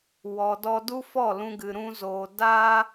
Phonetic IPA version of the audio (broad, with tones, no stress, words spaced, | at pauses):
wɔ˨ dɔ˧du˦fɔ˦˨ lũ˧ɡɨ˨ɾũ˧ zoː˨ daː˦